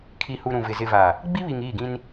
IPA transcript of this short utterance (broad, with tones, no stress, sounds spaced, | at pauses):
kʰ i˨ h u˨ ɾ ũ˨ v ɪ˨ z ɪ˨ v a˨ | ɡ͡b i˦ β i˨ ŋ iː˦˨ ɡ ĩ˦ n